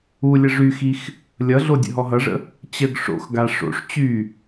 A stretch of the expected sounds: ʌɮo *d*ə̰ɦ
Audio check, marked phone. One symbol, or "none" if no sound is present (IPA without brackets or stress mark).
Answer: dʲ